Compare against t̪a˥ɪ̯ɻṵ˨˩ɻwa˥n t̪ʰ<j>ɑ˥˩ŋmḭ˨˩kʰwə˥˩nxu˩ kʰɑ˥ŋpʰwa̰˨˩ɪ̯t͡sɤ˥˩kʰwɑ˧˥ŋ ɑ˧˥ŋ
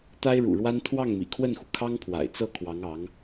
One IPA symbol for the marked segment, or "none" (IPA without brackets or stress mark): w